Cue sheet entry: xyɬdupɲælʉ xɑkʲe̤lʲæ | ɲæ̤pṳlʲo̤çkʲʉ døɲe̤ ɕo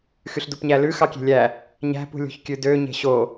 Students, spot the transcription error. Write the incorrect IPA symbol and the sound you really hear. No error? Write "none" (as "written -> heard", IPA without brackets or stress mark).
none